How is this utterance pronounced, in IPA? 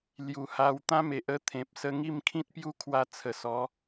l j u˨˩ h a˧ w t̪ ã˦ m e˨ ʔ ə˦ t̪ʰ ẽ˨ p̚ s ə˧ ŋ i˥˧ m kʰ ĩ˦ t̚ p j u˦ kʰ w a˧ t͡sʰ ə˨˩ s ɔ˨˦

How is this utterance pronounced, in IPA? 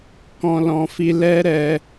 k ɔ̃˦ l ɔ̃˧ f i˦ l ɛ˦ ɾ ɛ˧

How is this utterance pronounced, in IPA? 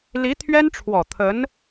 l i˧˥ t̪ʰ ɥ ɛ˥ n ʈ͡ʂʰ w ɔ˨˩ t̪ʰ ə˧˥ n

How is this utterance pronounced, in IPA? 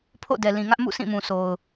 pʰ o̰˦˨ d ɛ˨ l ĩ˨ ŋ ä˦ ʔ m ṵ˦˨ s ĩ˦˨ m ũ˨ s o˨ ʊ̯

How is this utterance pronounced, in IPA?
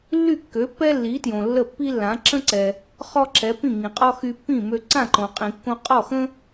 lː y˥˩ kː ø˩˥ pː ɛ˥ lː i˩˥ t j õ˩ lː ə˥˩ pː i˥ lː ã˩˥ ǁ ə̃˥ ǀ ɛ˩ | χ ɔ˥ ǁ ɛ˩˥ p ĩ˥˩ ŋ ĩ˩ qʼ ɔ˥ x y˧ pː ĩ˥˩ m ø˧ ǀ ã˥˩ ǃ õ˩ qʼ ĩ˩ kː õ˧ qʼ ɔ˥˩ x ə̃˥

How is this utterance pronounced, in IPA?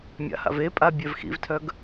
mʲ a̰ h a̰ v e pʼ a bʲ ɛ v x ḭ v tʰ œ ɡ

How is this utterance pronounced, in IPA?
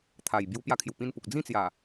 t̪ʰ a˨˩ j b j u˧ p j a˧ kʰ j u˨˩ p ĩ˧ n p u˨ k̚ d͡z ĩ˥˧ t͡s j a˨˩

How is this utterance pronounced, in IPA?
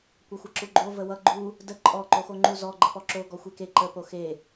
kʷ ʌ xʷ ʌ ǁ u ɡ͡ǃ o v ə w ʌ ɡ͡ǃ u | d ə ǃʼ ɔ ǃ o x o ŋ͡ǃ u z ɔ ɡ͡ǃ ə p ɔ ǁ o ɡ ɔ xʷ e k e ǃ ə p o x e

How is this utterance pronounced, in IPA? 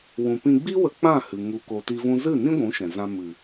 w ũ˨ p ĩ˧ ɡ͡b i˦ w ə˧ k͡p ã˦˨ h ɨ˨ ŋ u˧ k o˧ t i˦ v ũ˦ z ɨ˦˨ n ĩ˦ ɡʷ ũ˨˦ ʃ ɛ̃˨ z ã˧ m ɨ˨

